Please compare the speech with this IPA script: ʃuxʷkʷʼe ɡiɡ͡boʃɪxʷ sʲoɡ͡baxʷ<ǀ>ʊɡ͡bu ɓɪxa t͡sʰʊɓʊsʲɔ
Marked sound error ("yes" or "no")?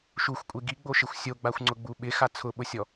yes